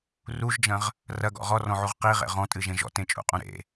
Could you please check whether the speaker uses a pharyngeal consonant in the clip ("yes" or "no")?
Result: yes